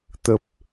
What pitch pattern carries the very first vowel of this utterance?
low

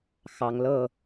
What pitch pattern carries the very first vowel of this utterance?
rising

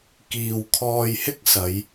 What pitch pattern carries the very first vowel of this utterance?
low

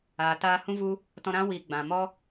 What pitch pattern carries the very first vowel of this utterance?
low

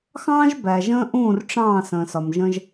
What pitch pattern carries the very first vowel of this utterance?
high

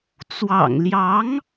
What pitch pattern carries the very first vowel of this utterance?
low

